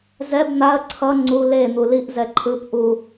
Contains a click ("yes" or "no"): yes